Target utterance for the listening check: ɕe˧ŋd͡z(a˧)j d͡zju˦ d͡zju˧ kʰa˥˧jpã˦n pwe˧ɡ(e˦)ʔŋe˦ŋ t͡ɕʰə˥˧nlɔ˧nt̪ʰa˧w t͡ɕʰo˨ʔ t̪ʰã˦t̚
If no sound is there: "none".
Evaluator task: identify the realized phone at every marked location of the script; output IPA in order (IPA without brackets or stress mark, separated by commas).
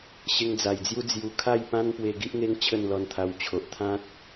a˨˩, i˦